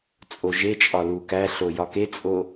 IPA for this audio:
t͡sʼ o ʒ e t͡ʃʼ ɒ l u k æ ɬ o j ɒ k e t͡sʼ o

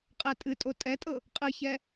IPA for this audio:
qʼ ɛ tʼ ɨ tʼ o tʼ ɛ tʼ ɤ | qʼ ɨ ç ɛ

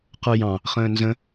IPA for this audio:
q ə˞ j ɑ̃ | χ ə̃ː n z ə̃

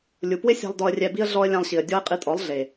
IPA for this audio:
lʲ u˨ p w ɪ˦ sʲ a̤˧ lˠ d ɔ˧ ə̯ rʲ ɛ˧ b i˦ ə̯ ɮ ɔ˦ ə̯ lʲ ã˧ lˠ ɕ i˨ ə̯ dʲ ɔ˦ ə̯ qʼ i˧ tʼ ɔ˨˦ lˠ ɮ e˨

